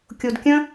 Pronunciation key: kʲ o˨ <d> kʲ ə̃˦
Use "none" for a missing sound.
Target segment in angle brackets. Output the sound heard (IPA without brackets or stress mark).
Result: d